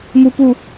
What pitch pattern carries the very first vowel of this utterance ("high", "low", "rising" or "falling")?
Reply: high